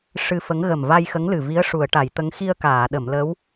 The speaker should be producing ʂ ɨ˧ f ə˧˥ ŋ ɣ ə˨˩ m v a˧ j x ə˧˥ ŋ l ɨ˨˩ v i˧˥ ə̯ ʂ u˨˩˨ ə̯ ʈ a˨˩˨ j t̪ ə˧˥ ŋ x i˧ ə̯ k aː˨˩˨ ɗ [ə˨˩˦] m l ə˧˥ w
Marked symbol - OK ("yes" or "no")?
no